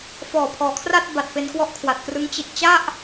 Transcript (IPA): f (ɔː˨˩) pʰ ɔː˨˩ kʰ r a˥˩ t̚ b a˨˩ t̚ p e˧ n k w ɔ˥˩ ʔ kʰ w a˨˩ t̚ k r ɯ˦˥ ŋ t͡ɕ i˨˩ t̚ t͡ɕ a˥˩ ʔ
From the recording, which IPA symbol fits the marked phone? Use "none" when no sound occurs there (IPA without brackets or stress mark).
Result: ɔː˨˩